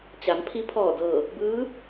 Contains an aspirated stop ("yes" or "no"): yes